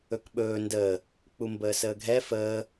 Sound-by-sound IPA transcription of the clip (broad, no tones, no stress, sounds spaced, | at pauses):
ɵ k ɓ ɵː n d əː | k͡p u m b əː s əː ɡʱ ɛ f əː